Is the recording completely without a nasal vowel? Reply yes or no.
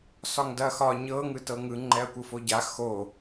yes